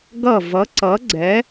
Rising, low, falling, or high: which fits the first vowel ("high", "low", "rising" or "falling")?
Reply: falling